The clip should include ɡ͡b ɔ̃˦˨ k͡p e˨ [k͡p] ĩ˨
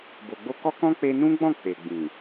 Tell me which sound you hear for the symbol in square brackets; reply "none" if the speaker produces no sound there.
ɡ͡b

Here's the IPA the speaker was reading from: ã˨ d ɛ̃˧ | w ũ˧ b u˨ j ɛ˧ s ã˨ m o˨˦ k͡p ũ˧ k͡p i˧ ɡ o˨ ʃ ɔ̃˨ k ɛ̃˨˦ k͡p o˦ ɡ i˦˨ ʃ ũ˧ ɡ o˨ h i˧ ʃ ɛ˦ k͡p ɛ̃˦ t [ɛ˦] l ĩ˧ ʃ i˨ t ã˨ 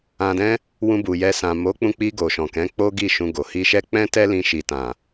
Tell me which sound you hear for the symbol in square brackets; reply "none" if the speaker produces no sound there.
ɛ˦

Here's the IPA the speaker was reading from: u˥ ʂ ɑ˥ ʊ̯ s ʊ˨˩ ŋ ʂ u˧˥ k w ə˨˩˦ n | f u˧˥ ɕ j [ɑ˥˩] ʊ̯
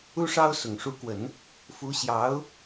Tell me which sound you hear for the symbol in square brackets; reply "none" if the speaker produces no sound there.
ɑ˧˥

